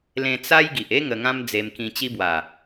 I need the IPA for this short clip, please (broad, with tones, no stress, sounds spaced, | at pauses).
l ẽ˧ t͡s a˦ j ɡ i˨ ʔ e˦ ŋ ə˧ ŋ ã˦ m d͡z e˧ m k ĩ˧ t͡ɕ i˦ b w a˨˩